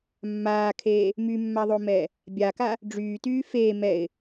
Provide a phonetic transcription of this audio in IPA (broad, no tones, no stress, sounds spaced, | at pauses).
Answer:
mː aː kʰ eː | m y mː a ðˤ o m ɛː | bʲ a k a | ɖ͡ʐ yː t yː f eː m ɛ ɪ̯